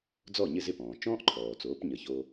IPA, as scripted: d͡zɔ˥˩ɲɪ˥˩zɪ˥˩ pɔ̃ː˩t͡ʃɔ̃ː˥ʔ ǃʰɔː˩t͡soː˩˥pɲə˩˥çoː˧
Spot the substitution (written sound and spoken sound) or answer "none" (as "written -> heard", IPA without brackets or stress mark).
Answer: none